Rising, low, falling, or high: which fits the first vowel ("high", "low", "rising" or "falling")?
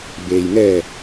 low